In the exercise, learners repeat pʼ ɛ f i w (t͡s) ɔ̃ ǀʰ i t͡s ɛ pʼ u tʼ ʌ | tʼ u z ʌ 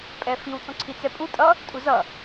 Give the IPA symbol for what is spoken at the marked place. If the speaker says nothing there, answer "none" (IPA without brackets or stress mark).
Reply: t͡s